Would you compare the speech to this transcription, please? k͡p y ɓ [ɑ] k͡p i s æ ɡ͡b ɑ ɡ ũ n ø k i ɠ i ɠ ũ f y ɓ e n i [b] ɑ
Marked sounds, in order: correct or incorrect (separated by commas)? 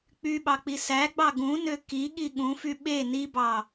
correct, correct